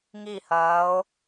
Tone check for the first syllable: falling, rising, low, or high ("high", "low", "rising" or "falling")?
falling